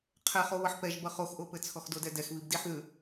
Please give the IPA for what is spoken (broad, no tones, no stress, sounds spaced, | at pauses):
qʰ ɛ χ o β ʌ ħ p ɛ ʒ b ʌ χ o x ʔ o p ɘ t͡sʰ ɔ x d o d ɛ d ɛ x β i b d i ħ ð ʉ